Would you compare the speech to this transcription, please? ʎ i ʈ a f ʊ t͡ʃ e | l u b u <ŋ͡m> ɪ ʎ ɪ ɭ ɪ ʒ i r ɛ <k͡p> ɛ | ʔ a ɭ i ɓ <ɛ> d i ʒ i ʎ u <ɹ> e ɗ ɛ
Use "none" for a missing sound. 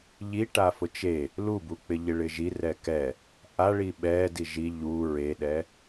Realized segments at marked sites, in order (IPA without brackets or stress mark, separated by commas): k͡p, k, ɛ, ɹ